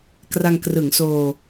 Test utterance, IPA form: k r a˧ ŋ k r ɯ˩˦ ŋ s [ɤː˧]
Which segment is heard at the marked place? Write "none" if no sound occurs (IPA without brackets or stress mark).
oː˧